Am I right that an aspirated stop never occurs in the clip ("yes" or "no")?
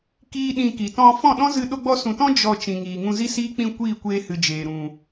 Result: yes